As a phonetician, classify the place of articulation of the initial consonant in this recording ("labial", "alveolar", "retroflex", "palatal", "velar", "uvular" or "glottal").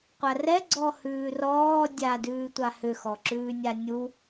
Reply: uvular